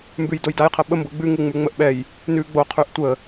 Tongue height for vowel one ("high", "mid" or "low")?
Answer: high